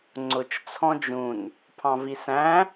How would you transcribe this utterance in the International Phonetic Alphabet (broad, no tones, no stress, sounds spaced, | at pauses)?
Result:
ŋ͡ǀ ʊ t͡ʃ t͡sʰ ɔ̃ d͡ʒ ũ n | pʰ ɑ̃ v i s æ̃